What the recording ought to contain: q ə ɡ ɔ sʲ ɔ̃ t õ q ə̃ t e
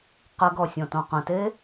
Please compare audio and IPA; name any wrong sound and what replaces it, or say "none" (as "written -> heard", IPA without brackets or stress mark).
none